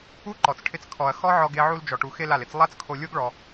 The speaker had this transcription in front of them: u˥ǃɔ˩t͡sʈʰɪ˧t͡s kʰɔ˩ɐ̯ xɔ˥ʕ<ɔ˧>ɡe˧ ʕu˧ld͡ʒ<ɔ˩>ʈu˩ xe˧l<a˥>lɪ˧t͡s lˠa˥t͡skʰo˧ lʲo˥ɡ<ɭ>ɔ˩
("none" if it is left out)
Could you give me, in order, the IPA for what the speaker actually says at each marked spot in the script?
ɔ˧, ɔ˩, a˩, ɭ

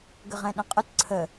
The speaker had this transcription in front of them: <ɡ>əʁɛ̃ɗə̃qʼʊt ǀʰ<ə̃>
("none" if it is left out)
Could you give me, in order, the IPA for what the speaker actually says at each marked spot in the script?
ɡ, ə

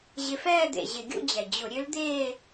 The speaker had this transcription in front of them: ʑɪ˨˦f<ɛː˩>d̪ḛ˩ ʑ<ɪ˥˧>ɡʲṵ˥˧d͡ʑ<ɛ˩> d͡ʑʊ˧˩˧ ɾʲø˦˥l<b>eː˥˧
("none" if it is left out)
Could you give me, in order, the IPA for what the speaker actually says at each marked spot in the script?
ɛː˥˧, ɪ˧˩˧, ɛ˩, d̪

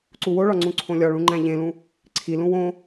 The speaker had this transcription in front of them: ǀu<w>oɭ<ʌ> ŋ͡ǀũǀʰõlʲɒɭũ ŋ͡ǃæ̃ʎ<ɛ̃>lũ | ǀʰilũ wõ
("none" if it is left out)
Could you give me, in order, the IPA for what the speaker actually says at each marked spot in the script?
w, ɒ, ẽ

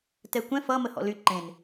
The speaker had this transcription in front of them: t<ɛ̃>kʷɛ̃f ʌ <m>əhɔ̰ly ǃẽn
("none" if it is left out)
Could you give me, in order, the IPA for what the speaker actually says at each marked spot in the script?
ɛ, m

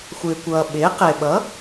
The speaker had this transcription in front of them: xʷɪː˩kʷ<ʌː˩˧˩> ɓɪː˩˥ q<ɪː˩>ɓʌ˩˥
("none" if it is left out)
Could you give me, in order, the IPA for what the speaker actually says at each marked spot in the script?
ʌː˩, ɪː˩

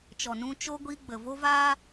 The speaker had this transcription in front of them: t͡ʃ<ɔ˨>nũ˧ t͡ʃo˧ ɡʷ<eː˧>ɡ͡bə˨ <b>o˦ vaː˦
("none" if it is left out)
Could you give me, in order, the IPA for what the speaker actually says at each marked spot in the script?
ɔ˨, iː˧, v

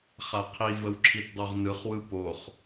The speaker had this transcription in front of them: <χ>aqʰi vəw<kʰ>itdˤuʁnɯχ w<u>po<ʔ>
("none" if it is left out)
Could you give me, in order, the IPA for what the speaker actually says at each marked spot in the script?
χ, ǁʰ, ɯ, χ

